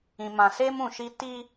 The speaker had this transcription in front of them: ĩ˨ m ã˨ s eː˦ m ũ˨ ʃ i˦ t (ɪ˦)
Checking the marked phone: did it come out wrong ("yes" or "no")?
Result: yes